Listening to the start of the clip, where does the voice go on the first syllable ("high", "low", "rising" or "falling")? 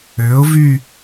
rising